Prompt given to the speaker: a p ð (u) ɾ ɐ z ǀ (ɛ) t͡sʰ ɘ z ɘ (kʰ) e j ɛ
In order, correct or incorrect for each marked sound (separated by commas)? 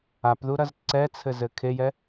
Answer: correct, correct, correct